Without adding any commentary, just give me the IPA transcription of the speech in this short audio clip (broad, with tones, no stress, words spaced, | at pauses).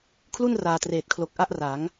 kʰlu˥˩nraː˨˩treː˨˩t̚kʰlo˨˩k̚ ʔa˥˩ʔra˩˦ŋ